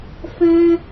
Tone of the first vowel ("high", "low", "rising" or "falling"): high